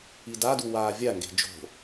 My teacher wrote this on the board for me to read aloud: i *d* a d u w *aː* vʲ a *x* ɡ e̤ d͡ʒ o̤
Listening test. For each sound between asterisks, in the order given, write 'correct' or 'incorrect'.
correct, correct, incorrect

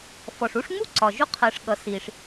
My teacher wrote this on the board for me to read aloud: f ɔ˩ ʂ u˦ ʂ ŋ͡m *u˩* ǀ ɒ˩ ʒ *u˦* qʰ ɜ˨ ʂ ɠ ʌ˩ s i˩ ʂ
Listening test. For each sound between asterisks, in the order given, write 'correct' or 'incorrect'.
incorrect, correct

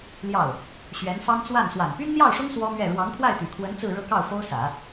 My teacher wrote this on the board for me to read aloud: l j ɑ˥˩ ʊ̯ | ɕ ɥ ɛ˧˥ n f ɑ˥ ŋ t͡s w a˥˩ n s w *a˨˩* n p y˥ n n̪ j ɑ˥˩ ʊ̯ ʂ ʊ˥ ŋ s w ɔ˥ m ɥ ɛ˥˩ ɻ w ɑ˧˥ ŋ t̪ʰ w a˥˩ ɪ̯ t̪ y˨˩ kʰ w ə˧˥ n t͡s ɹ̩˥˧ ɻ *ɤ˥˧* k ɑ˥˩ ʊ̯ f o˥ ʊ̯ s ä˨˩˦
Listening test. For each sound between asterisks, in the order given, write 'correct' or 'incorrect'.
correct, correct

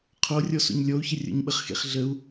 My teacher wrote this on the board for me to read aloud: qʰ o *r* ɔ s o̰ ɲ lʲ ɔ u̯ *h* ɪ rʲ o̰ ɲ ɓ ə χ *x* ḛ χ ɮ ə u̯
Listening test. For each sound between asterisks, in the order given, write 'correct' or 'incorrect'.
incorrect, incorrect, correct

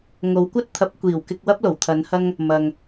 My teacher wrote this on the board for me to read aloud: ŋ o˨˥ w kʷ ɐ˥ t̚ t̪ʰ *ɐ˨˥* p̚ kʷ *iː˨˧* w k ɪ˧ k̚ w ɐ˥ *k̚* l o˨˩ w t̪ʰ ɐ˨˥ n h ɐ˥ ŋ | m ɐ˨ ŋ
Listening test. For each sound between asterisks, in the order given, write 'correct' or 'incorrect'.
correct, incorrect, incorrect

